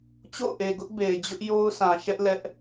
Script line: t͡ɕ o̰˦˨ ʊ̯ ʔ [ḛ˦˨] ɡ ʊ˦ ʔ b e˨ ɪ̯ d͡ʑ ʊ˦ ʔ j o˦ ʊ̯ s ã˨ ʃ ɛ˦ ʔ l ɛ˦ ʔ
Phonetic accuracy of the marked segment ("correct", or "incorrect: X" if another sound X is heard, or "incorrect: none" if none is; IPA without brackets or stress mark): incorrect: e˨